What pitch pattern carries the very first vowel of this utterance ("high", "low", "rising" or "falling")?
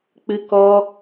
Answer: high